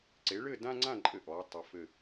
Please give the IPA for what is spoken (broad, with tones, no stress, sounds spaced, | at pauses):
ǀ e˩˥ ɭ ɘ˥˨ d ã˦ ŋ͡ǀ ã˥˨ ǃʼ ɘ˧˩˧ ʔ ɔː˩˧ tˤ ə˩˧ f ɘ˧˩